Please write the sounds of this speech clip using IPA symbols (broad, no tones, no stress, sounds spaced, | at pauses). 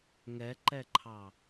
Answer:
ŋ ɛ ǃ ɛ ǃʰ ɑ